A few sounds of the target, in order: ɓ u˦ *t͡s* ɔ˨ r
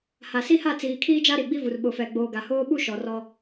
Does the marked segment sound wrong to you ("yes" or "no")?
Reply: yes